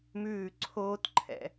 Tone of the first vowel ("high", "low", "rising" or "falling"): falling